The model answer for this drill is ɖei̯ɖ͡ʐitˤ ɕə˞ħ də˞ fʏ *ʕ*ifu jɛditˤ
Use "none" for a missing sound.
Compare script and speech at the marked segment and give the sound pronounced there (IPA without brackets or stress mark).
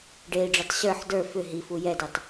ɦ